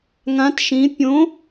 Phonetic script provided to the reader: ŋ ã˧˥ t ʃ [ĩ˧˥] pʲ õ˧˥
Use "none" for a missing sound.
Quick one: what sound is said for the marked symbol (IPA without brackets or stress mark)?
ĩ˧˥